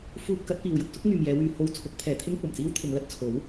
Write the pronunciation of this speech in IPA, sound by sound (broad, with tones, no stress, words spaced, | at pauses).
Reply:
fuː˧p̚ kɐ˨˥t̚piː˨wjʊ˥k̚ sʊ˥k̚ŋyː˨m jɛː˨˧wyː˨ ho˧wt͡sʰʊ˨˥k̚pʰɛː˨ t̪ʰɪ˥ŋkʷɐ˨˩mt͡siː˥w t̪ʰɪ˨˧ŋlɐ˨˥t̚t͡sʰo˨˥w